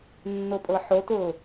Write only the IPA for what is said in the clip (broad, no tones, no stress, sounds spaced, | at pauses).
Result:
nː o pʼ ɤ ħ o t ʊː